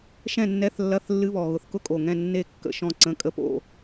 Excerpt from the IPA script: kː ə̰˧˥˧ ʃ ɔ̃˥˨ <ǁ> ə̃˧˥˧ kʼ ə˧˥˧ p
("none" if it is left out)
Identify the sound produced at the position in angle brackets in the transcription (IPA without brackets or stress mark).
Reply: ǀ